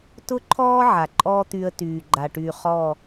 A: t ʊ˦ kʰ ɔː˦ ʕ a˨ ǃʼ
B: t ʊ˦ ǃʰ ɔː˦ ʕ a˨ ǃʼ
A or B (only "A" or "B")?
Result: B